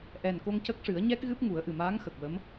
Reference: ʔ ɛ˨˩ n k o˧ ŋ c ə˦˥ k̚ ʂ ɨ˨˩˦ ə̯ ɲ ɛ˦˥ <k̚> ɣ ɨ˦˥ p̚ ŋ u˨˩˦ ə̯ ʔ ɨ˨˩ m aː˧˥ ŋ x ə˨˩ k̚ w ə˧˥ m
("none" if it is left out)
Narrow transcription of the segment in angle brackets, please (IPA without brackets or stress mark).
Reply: k̚